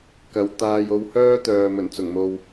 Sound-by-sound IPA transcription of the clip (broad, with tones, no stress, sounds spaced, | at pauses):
k ɐ˨˧ w t̪ aː˧ j o˧ w h œː˥ t̪ œː˨ m ɵ˨˩ n t͡s ʊ˨˩ ŋ m o˨ w